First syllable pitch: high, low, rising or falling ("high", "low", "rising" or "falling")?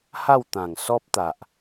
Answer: falling